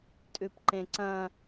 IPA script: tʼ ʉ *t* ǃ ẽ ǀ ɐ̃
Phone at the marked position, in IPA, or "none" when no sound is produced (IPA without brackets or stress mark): p